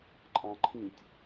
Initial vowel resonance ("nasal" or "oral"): nasal